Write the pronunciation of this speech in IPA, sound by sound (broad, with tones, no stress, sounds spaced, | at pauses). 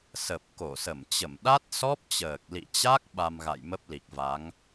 s ə˨˩ p̚ k o˧˩ s ə˧˩ m t͡ɕ ə˧˩ m ɗ a˦˥ t̚ s ɔ˦˥ p̚ t͡ɕ əː˨˩ k̚ l ḭ˧˨ t͡ɕ a˦˥ k̚ ɓ a˧ m ɣ a̰˧˨ j m ə˦˥ p̚ l i˨˩ k̚ v a˨˦ ŋ